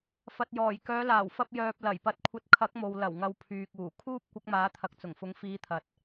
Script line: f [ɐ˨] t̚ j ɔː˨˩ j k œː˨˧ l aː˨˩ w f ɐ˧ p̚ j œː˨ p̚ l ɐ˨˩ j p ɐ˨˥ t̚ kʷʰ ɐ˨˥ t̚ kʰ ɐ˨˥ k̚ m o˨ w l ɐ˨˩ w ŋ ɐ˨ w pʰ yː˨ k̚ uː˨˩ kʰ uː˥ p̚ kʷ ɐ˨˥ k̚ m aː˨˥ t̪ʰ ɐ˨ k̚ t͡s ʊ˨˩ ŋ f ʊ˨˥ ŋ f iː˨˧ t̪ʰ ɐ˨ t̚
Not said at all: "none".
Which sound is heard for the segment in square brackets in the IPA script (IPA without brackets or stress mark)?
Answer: ɐ˨